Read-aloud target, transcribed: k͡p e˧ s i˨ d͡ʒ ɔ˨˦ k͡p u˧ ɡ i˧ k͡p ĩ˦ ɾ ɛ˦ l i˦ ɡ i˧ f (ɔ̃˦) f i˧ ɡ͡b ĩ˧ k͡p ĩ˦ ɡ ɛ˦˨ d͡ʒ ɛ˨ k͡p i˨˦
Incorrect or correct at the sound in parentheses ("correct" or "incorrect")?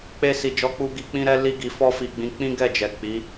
incorrect